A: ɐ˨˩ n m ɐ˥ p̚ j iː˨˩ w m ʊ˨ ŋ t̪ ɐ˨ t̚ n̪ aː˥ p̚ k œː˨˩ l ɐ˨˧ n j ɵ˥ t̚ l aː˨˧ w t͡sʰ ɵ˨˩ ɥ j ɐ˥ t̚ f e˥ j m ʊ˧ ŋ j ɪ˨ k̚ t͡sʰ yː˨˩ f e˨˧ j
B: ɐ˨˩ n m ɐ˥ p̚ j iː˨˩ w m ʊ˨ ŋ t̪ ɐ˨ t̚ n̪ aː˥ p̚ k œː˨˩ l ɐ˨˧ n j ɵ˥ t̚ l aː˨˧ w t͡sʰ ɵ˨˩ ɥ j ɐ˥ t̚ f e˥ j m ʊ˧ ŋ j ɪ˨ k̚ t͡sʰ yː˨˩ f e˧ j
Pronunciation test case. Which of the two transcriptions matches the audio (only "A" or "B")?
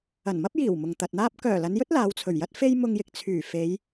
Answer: A